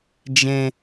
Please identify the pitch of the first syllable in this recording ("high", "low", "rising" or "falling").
low